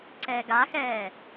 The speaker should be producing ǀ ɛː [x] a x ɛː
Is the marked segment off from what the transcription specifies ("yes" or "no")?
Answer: yes